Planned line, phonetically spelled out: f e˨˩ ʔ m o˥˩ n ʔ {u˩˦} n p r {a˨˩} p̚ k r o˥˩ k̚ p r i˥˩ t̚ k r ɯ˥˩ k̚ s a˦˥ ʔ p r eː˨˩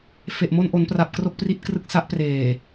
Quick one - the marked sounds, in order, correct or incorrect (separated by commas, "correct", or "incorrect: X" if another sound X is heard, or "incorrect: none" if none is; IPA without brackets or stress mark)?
incorrect: o˩˦, correct